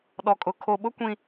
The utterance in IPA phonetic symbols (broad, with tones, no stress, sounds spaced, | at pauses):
ɗ ɔ˨ kʼ ʊ˨ kʰ o˨ ɓ ʊ˦ kʷ ĩ˨